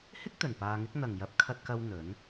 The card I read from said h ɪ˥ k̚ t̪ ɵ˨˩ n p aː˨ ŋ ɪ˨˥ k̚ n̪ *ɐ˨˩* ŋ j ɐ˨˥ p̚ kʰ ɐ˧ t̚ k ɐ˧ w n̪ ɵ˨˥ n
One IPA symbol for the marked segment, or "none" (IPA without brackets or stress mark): ɐ˨˩